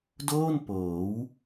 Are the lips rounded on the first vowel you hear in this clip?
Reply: yes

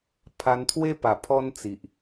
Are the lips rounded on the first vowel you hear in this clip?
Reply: no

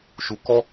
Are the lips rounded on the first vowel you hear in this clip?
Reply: yes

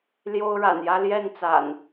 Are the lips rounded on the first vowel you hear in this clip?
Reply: yes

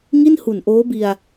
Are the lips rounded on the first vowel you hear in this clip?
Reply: no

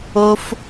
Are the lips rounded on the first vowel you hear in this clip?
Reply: yes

